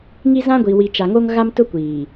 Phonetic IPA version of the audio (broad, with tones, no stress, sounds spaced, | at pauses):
ŋ i˦ z ã˦ ɡʷ i˨ w i˨ t͡ʃ a˨ ŋ o˦ ŋ ɣ a˦ m t ʊ˦ kʷ iː˨